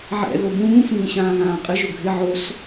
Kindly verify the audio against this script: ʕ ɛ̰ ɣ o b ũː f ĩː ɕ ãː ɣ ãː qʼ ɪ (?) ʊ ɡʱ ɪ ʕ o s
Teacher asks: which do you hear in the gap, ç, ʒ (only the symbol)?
ʒ